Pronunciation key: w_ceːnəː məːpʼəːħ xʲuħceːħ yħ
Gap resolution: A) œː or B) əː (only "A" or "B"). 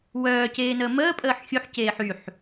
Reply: A